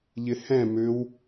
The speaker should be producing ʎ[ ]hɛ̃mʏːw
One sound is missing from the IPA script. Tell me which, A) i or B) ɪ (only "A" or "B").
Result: B